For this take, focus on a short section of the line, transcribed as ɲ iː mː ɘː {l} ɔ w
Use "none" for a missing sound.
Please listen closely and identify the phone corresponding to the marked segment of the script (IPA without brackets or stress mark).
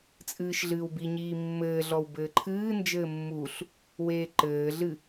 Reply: ɮ